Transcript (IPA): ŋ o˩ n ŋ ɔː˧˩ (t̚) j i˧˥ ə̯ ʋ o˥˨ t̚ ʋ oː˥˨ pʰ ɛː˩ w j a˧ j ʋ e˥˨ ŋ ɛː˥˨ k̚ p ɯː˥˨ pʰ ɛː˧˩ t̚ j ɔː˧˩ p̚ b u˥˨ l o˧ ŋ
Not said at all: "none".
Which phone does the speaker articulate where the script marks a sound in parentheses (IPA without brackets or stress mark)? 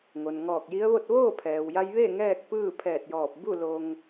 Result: k̚